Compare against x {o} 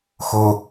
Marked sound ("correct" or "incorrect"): correct